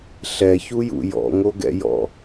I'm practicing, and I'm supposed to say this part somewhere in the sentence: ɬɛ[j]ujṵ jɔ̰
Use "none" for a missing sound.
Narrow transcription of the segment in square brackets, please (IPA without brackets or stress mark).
ç